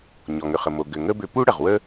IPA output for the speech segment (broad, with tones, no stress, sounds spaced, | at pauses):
ɲ ɔ˨ ŋ ʏ˨ χ ə˨ m o˨ ɡ ʏ˨ ŋ ə˦ b ʏ˧ p u˦ ɽ ə˨ ʁ w ə˧